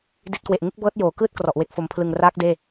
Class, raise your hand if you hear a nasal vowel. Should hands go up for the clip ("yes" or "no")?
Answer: no